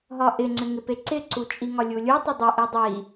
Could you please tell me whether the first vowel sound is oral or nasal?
oral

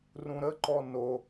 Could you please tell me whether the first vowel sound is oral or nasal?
nasal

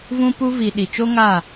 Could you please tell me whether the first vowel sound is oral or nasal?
nasal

